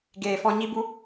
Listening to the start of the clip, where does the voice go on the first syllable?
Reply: low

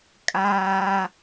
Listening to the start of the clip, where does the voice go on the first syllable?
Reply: high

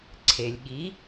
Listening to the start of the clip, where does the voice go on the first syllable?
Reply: low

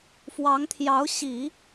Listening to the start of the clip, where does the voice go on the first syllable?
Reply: rising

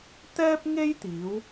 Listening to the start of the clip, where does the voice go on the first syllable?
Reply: high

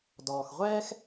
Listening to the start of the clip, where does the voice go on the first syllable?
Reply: low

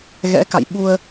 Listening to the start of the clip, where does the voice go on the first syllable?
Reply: rising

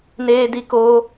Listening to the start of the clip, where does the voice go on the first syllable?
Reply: high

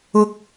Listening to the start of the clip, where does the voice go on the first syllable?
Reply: high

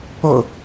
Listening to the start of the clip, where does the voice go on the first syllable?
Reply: falling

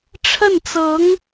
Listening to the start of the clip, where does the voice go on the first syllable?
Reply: falling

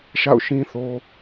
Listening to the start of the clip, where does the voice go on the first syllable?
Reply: falling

